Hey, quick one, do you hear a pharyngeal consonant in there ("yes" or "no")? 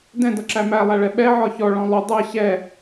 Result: yes